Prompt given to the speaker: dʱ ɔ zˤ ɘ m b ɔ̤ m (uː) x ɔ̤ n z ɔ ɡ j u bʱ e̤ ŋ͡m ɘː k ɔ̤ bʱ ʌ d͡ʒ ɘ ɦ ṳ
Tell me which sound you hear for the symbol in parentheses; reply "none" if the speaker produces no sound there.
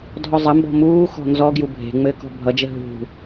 uː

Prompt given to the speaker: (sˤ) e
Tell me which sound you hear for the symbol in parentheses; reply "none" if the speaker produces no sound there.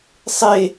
sˤ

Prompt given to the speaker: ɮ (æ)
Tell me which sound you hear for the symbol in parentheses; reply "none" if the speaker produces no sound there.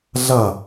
ɐ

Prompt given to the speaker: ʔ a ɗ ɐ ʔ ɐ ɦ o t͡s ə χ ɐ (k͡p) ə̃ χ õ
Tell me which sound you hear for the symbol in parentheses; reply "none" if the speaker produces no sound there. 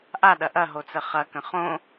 k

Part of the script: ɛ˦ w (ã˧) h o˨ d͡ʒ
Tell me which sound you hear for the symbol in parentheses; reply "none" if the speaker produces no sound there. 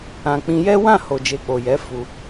ã˦˨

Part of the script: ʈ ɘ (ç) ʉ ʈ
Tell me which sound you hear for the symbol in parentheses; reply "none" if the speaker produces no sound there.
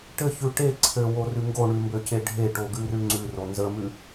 ç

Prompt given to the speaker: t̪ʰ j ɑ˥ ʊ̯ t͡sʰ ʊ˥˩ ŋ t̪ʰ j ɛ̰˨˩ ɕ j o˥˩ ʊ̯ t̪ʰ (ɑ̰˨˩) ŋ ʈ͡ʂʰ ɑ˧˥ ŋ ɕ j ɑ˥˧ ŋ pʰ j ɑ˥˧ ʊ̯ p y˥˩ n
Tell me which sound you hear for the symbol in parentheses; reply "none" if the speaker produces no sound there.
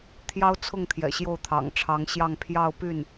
ɑ̰˨˩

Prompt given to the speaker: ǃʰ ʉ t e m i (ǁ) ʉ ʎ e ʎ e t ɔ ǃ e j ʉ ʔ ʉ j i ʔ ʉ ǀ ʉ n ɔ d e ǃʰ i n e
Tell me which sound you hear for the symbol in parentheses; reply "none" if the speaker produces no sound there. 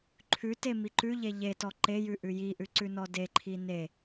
ǃ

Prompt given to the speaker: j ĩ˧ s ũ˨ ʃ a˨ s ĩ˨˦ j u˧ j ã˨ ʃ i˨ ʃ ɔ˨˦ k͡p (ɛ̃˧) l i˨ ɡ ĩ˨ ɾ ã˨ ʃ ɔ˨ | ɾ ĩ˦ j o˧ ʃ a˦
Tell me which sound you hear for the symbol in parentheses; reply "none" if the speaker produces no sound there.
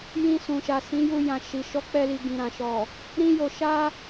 ɛ˧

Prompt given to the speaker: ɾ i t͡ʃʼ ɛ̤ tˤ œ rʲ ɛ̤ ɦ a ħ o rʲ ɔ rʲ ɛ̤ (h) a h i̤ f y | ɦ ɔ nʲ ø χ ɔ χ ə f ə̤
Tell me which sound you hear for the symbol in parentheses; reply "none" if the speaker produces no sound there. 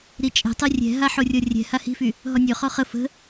h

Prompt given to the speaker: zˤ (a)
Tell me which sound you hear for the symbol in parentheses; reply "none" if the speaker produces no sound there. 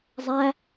æ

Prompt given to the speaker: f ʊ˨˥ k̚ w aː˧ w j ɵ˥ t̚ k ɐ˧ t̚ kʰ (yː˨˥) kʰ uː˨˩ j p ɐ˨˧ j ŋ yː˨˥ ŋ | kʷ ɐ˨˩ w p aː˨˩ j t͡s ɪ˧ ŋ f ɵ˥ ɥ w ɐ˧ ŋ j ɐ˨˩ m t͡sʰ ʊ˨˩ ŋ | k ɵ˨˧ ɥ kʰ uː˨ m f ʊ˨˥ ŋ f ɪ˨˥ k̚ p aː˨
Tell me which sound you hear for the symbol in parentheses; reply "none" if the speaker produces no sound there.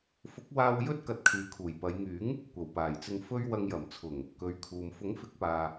yː˨˧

